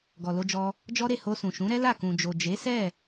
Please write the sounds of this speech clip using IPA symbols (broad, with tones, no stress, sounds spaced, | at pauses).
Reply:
ɡ ɔ˨ l o˧ d͡ʒ ɔ˧ | d͡ʒ ɔ˦ ɾ e˦˨ h o˧ s ũ˨ ʃ ũ˨˦ ɾ ɛ˦ l a˦˨ k ũ˨ d͡ʒ o˨ d͡ʒ e˨˦ s ɛ˦˨